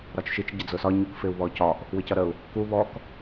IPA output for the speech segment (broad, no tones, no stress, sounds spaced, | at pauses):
ɾ ɒ t͡ʃ ʃ i t͡ʃ ɟ ə d͡z ʊ s ɒ ɲ u k f ɪ u̯ β ɔ c ɒ ʔ | w ɪ c ʌ ɾ ə u̯ | k u β ɔ k